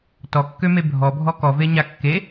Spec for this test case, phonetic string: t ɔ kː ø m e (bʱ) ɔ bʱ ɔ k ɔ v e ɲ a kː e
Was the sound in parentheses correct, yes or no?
yes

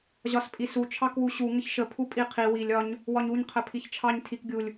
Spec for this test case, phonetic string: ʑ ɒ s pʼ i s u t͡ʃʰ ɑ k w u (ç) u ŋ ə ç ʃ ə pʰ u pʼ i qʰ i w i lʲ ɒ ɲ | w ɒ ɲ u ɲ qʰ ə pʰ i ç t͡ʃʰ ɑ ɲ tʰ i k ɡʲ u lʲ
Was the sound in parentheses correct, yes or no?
no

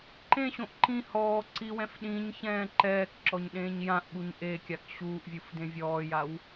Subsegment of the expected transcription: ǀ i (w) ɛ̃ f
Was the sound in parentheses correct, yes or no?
yes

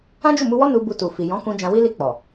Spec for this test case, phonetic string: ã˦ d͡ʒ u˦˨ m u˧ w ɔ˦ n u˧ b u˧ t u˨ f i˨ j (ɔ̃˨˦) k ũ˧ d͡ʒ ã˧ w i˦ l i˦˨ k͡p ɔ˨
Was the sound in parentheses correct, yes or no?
yes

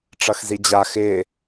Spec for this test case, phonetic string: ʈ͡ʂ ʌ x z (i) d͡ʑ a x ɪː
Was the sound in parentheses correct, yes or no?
yes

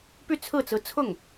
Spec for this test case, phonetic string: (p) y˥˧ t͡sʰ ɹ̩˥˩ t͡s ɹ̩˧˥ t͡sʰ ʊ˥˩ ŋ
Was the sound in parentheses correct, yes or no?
yes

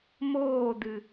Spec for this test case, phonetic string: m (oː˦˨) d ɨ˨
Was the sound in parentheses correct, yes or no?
yes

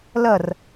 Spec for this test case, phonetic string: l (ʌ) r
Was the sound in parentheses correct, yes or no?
yes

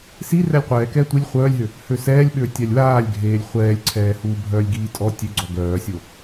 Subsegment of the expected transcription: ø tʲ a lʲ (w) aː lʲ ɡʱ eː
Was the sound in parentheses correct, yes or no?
yes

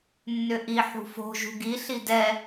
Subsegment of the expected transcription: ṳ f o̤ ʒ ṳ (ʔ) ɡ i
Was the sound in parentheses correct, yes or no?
no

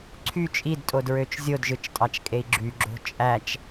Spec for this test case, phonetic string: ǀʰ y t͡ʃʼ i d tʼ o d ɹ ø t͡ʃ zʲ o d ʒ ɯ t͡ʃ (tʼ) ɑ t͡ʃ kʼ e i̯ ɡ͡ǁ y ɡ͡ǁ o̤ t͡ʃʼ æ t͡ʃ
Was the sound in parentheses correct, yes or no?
yes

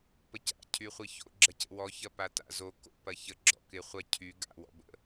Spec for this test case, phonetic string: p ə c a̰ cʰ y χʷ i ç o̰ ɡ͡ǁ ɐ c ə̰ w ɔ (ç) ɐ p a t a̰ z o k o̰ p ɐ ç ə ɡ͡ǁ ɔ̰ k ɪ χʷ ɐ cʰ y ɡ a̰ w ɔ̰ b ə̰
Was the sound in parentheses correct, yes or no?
yes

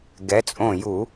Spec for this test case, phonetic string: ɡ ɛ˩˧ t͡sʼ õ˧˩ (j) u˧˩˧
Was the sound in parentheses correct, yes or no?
yes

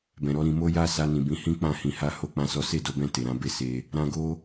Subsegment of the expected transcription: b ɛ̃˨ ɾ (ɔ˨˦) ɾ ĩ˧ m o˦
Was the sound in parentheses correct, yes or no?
yes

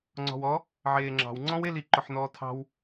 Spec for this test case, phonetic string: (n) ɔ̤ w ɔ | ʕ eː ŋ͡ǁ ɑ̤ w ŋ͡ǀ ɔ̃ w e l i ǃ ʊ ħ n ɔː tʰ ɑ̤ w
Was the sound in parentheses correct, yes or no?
no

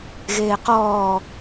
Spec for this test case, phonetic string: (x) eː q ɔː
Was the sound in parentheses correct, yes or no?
no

